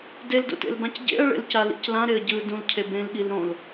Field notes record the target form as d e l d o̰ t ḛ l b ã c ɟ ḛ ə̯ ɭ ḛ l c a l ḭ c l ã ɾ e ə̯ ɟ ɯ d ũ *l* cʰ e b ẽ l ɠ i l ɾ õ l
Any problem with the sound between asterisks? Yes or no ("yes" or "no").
no